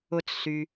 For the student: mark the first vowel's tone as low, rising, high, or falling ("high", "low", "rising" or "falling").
high